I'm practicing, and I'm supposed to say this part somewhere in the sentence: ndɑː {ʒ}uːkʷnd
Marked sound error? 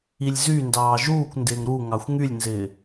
no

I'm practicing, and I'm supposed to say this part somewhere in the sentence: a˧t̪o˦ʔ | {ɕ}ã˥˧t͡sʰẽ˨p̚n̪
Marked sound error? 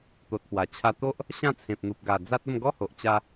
no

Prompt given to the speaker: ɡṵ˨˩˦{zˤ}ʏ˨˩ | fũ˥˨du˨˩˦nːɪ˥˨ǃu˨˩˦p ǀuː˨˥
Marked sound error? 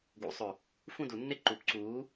yes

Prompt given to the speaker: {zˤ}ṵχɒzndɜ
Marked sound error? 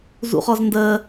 yes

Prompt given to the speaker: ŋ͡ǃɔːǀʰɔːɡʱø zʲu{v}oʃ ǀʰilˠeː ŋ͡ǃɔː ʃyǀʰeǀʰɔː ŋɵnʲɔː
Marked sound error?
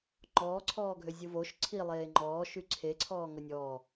no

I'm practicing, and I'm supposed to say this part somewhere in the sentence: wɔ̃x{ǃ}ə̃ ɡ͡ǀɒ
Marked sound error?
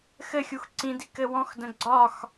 yes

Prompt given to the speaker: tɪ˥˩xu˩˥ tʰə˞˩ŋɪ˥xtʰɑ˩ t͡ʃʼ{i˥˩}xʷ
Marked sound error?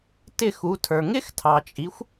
yes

